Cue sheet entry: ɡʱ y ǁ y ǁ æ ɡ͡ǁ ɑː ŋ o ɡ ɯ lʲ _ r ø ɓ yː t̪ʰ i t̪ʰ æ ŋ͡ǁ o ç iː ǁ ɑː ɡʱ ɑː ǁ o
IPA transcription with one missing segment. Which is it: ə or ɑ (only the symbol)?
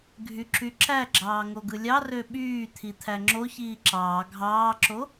ɑ